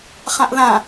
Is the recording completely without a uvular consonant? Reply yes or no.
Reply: no